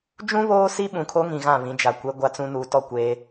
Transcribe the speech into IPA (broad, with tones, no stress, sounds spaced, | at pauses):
d͡ʒ ũ˦ β oː˦ s i˦ ɓ ũ˨ kʰ o˦ ŋ ĩ˨ ɣ ã˦˨ β ĩ˨˦ d͡ʒ a˨ kʷ e˦ ɡʷ a˦ t͡s ũ˦ n uː˨ t ɔ˦˨ kʷ eː˦